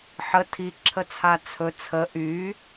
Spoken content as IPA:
ħ ə tʰ i ǁʰ ə t͡sʰ a t͡sʰ ɵ t͡sʰ ə ʔ y

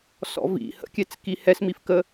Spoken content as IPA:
s ɔ̰ v ḭ h ə̰ kʲ ɛ t͡s k i h ɛ s m i f k ə

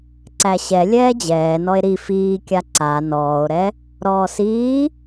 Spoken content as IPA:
ǀ æ ɕ ɛ lʲ ɛː d͡ʑ ɛː n ɔ e̯ ɾ i f iː kʲ a ǀ a n ɔː o̯ ɾ ɛ | ɾ ɔː s iː

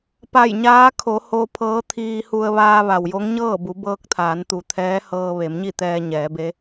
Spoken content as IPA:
p a˧˩ j ɲ aː˧˥ kʰ o˩˧ h o˧ pʰ ɤː˧˥ t̪ʰ iː˧ h u˧ ə̯ ʋ aː˧ ʋ a˩ w j o˧˥ ŋ ɲ ɤː˥˨ b u˩˧ b ɤː˧ k̚ t̪ʰ aː˩˧ n t̪ u˩˧ t̪ʰ ɛː˧˥ h ɤː˧ ʋ e˩˧ m ɲ i˥˨ t̪ ɛː˧ ɲ ɛː˩˧ b e˧˥

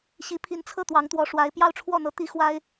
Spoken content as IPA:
ɕ i˧˥ pʰ i˧˥ n t͡sʰ ɤ˥˩ t̪ w ɑ˧˥ ŋ t̪ w ɔ˧˥ ʂ w a˧˥ ɪ̯ p j ɑ˥˧ ʊ̯ ʈ͡ʂʰ w ɔ˥˩ n̪ ɤ˥ t̪ i˥ x w a˥ ɪ̯

